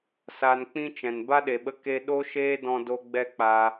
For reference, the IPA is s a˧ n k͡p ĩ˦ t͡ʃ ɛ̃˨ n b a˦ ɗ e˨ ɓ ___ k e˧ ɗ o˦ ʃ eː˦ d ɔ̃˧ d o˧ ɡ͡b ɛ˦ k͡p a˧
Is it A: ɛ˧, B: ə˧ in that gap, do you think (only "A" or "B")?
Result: B